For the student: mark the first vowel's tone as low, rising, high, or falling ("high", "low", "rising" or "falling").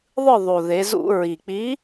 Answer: falling